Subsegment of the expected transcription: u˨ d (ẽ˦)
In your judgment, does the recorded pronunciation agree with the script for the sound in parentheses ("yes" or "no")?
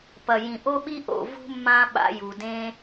yes